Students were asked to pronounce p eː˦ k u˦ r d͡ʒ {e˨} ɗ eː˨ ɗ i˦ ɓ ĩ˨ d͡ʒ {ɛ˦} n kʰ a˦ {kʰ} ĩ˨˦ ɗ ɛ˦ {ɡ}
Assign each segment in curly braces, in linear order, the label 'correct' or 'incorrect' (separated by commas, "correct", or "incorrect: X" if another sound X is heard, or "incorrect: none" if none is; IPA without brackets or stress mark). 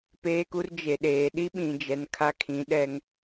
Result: correct, incorrect: ɛ˨, correct, incorrect: ŋ